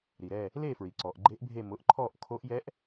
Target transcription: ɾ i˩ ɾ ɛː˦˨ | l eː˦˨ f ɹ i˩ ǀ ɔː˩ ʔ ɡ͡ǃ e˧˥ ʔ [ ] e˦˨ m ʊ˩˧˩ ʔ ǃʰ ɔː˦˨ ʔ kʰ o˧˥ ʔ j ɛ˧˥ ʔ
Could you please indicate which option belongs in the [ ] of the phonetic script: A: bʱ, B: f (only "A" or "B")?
A